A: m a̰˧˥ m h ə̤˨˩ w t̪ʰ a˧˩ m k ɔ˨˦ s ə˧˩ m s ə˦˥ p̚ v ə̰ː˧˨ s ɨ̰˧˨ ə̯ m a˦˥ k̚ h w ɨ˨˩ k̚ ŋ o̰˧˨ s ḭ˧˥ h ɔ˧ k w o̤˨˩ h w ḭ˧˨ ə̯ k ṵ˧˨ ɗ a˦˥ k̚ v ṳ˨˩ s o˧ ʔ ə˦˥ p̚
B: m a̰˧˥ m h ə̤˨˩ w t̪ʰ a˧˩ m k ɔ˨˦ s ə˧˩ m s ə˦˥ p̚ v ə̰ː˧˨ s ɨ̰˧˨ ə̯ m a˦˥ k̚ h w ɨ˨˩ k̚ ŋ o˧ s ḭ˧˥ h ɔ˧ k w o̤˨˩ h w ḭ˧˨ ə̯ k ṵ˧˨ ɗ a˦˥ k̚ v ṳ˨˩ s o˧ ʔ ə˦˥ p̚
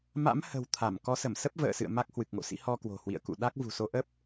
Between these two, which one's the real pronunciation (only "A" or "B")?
A